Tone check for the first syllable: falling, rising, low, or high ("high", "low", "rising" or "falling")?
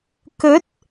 rising